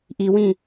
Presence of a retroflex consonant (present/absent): absent